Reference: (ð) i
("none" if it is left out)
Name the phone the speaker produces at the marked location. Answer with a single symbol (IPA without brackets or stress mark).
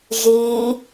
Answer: ʒ